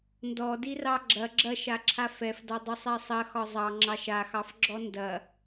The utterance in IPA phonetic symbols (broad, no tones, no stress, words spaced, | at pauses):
ndɔdirɑ ɡ͡ǁɐ ɡ͡ǁɐʃaǁʰa fɛfdɒ dˤʊsˤɛsˤɐxɒ zˤɑŋ͡ǁɑʃ axɑfɡ͡ǁɔ ndɐ